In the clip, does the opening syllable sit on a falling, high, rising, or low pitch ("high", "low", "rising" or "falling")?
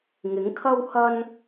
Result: rising